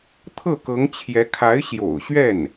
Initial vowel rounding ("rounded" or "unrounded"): unrounded